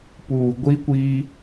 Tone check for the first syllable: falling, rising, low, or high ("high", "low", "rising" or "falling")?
low